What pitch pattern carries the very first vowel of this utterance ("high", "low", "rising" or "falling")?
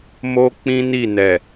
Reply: high